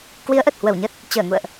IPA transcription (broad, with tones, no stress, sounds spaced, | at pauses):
k w i˨˦ ə̯ ʔ ə˨˩ t̚ h w ə˧˩ w ɲ ə˦˥ t̚ | t͡ɕ əː˧˩ ŋ ṵ˧˨ ə̯ ʔ